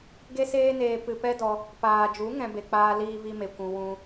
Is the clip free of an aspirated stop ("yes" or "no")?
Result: yes